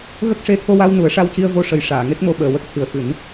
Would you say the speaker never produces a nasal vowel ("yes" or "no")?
yes